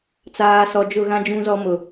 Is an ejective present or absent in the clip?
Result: absent